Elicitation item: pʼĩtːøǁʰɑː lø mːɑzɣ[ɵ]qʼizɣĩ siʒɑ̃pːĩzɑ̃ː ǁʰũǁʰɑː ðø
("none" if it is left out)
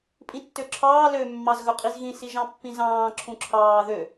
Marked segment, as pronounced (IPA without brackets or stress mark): ɵ